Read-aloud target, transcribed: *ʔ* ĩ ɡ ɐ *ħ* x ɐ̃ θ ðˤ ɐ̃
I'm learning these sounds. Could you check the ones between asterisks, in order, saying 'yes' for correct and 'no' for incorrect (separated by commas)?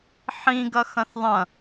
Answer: no, no